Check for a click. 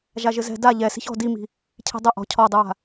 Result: absent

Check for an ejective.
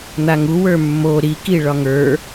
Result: absent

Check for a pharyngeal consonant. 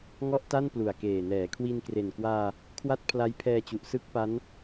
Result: absent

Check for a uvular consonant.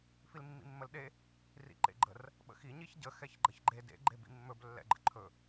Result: absent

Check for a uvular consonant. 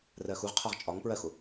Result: present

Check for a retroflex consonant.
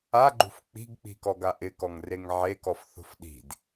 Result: absent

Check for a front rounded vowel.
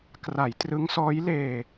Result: absent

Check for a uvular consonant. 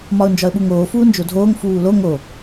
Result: absent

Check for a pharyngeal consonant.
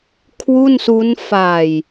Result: absent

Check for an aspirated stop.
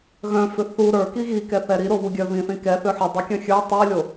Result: absent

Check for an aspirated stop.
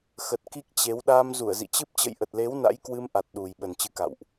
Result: absent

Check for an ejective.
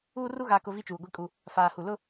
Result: present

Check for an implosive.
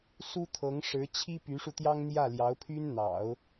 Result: absent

